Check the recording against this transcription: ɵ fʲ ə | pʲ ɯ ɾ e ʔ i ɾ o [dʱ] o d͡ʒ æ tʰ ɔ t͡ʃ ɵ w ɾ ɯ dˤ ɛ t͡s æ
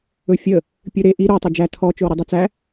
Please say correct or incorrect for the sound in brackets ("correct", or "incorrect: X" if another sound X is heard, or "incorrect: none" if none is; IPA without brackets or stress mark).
incorrect: tˤ